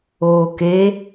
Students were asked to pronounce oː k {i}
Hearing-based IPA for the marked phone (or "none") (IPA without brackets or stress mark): e